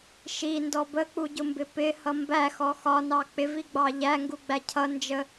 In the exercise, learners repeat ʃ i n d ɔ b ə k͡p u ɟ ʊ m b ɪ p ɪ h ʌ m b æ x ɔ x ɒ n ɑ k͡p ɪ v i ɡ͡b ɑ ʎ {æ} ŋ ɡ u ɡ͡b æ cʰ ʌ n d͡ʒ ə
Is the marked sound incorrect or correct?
correct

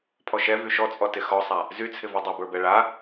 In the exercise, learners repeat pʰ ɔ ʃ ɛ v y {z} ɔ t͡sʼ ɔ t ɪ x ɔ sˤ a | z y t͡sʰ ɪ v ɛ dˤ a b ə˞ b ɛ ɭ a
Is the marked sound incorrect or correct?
incorrect: ʃ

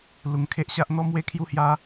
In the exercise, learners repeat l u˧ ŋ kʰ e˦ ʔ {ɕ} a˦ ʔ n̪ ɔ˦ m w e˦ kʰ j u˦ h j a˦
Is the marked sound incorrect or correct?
correct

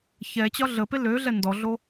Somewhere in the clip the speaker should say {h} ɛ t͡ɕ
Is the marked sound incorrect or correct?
incorrect: ç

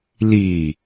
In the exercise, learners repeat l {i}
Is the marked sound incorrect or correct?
correct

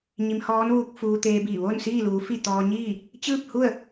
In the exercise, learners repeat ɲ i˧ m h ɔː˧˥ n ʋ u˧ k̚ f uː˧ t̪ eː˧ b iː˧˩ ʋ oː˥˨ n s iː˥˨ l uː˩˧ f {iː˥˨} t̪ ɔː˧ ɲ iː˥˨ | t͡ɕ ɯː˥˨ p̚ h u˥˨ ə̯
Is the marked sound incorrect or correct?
incorrect: i˥˨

